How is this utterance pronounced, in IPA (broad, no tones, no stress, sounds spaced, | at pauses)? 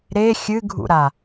ɾ e xʲ ɨ ɡʱ ṵ ɾ a